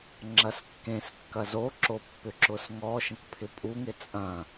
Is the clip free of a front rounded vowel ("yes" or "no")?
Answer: no